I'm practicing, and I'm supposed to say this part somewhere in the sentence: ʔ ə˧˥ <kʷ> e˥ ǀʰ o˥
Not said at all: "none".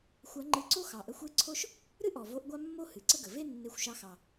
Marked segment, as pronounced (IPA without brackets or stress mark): xʷ